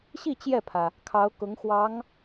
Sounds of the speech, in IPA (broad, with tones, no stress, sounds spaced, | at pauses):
ɕ i˥˧ t͡ɕ j ɛ˥˩ pʰ ä˩ | kʰ ɑ˧˥ ʊ̯ k ʊ˧˥ ŋ x w ɑ˧˥ ŋ